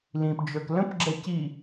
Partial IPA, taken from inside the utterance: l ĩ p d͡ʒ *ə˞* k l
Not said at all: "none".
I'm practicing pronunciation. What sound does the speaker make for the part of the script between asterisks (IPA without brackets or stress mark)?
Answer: ə˞